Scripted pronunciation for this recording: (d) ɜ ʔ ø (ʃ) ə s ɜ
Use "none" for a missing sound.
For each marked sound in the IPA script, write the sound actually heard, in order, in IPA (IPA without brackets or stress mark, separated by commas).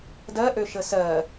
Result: d, ʃ